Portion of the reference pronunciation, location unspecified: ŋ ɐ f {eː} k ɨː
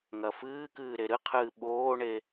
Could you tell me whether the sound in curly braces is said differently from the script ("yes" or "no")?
yes